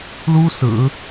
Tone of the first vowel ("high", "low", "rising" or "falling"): high